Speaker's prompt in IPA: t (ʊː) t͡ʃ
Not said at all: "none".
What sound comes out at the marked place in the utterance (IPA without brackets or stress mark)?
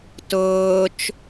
ʊː